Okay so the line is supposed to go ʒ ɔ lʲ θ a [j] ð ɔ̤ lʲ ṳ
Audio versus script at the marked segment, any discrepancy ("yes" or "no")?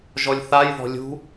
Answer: no